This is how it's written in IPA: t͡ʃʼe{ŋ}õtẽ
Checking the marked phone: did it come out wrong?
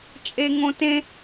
no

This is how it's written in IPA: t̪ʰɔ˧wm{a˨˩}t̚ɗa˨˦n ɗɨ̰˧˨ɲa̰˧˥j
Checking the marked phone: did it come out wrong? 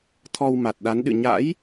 no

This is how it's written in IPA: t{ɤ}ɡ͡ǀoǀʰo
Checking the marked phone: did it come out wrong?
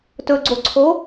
yes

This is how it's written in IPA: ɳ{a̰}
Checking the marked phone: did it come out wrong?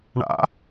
no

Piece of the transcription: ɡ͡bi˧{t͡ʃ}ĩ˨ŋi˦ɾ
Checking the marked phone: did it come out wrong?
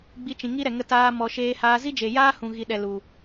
no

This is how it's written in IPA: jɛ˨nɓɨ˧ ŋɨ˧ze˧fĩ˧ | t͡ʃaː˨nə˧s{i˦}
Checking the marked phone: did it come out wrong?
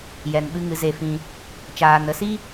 no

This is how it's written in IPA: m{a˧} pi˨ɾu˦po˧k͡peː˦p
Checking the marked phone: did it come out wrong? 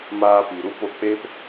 yes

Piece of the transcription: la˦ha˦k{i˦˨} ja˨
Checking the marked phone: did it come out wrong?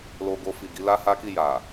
no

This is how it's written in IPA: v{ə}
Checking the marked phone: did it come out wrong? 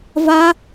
yes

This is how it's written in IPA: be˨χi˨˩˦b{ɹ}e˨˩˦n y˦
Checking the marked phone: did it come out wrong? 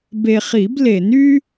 yes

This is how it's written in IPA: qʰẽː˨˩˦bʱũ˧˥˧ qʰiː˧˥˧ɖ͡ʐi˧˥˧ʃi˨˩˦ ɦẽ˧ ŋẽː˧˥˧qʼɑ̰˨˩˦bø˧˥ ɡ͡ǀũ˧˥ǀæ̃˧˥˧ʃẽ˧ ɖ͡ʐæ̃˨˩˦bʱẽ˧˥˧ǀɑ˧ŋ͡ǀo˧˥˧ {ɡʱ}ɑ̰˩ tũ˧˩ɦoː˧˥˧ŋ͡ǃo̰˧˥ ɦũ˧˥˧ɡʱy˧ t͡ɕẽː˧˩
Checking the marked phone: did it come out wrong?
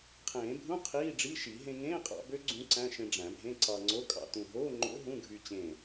yes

